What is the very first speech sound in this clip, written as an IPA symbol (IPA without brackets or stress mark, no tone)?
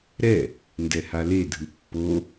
ɾ